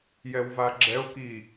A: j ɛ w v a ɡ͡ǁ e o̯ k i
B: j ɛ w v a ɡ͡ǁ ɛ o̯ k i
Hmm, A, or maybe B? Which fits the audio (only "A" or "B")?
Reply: B